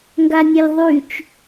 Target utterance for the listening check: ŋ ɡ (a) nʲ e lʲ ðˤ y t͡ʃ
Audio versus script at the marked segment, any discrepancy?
no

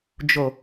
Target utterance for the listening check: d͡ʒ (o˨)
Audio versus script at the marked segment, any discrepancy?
no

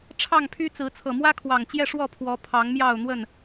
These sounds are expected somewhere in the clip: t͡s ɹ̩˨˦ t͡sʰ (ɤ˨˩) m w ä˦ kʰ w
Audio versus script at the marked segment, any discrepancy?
no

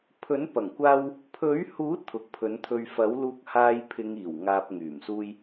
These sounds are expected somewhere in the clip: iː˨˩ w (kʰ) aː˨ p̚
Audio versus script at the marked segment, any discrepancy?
yes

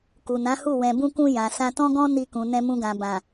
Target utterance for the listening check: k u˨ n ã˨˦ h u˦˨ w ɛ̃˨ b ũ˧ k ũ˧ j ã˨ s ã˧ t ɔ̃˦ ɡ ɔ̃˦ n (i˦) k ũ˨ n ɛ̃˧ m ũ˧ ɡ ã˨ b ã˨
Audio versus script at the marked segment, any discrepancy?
yes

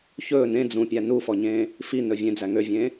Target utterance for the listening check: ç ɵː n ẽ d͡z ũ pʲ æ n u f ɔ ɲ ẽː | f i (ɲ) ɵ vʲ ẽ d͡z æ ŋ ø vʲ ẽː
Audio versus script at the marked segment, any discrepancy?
yes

